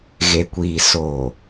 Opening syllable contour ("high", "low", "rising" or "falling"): low